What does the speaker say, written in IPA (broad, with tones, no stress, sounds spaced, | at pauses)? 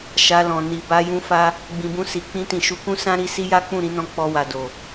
ʃ a˧ l ɔ̃˨ n i˨ b a˧ j ũ˦ f a˦ | ɡ͡b ĩ˨ b ũ˧ s i˨ k͡p ĩ˧ t ĩ˨ ʃ u˨˦ k ũ˦ s ã˦ ɾ i˦ s i˦ j a˦ k͡p ũ˦˨ ɾ ĩ˨˦ n ɔ̃˧ k͡p ɔ˧ w a˨ d o˨